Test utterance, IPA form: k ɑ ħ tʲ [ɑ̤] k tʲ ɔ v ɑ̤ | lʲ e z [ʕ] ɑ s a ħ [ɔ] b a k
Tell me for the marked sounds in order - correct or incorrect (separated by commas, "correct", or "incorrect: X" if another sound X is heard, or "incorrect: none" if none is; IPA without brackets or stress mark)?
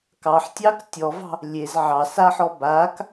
incorrect: ɑ, correct, correct